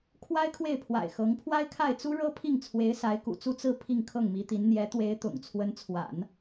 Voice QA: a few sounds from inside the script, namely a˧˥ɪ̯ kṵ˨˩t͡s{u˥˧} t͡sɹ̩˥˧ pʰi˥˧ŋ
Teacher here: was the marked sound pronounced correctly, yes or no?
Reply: yes